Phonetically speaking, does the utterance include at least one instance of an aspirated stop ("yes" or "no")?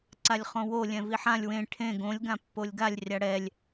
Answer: yes